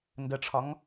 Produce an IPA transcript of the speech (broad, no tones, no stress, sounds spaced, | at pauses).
n d ə ʈ͡ʂʰ ɒ ŋ